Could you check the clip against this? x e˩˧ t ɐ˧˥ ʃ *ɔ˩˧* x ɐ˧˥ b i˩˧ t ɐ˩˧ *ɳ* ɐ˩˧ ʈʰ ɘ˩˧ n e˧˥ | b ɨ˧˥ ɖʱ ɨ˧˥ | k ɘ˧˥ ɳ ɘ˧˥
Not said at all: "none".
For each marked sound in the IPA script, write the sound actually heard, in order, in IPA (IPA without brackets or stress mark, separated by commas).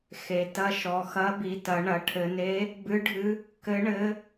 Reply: ɔ˩˧, ɳ